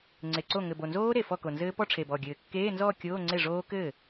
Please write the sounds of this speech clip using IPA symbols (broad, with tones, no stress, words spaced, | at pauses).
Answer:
ŋ͡ǀe˧˩ǀo˥˩ ŋɘ˧˩bo˧˩nzoː˦˥ ɾe˧˩fɔ˥˩ko˧˩nzɘː˦˥ pɔ˥˧ʈ͡ʂʰe˧˩bɔ˧˩ɡʲɘː˧˩ kːeː˧˥˧nzɔː˥˧ kʲoː˧˥˧ŋ͡ǀe˥˩ʐoː˦˥ kɘː˥˩